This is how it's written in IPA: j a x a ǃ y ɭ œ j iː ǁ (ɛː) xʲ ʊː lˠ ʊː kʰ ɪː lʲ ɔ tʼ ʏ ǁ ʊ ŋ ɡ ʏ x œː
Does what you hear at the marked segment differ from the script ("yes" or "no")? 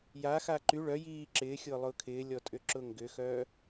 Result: yes